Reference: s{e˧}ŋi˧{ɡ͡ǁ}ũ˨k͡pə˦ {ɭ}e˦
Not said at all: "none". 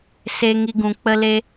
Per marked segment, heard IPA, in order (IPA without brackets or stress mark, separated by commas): e˧, ɡ, l